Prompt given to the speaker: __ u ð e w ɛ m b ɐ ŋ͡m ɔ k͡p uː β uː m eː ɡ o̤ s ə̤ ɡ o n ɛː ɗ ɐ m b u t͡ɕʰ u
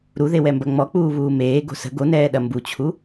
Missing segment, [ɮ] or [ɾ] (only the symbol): ɾ